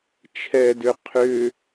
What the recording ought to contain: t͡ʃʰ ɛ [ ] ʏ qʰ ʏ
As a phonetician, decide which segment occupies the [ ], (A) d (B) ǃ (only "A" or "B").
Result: A